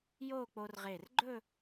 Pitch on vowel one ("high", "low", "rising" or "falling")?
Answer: falling